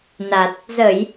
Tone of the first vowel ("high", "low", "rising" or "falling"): low